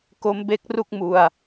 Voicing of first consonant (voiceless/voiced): voiceless